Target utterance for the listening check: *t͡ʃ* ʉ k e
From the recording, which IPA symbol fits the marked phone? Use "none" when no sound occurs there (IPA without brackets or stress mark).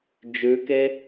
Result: d͡ʒ